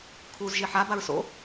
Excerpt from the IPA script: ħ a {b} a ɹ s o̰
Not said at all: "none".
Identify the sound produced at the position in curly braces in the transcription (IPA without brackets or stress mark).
b